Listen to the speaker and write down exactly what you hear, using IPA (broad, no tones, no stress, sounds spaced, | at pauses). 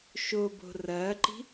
ʃ o b o̤ r ɐː ǃ i̤